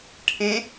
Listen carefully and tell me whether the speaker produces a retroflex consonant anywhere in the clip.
yes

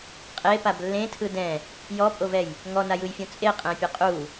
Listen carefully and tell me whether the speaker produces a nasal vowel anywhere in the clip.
yes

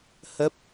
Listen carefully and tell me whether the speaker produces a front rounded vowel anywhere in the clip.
no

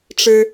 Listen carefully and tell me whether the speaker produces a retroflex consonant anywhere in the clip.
yes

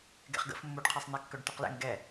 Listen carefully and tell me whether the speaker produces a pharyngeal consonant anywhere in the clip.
no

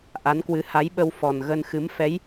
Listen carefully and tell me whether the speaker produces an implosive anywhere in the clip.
yes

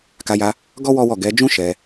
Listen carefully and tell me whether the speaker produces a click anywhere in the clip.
no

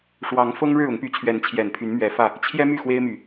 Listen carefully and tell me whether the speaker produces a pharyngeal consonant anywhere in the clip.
no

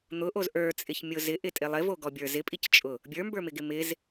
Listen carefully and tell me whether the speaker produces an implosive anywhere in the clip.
no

